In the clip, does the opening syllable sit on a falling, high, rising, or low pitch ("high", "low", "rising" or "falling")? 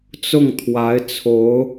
falling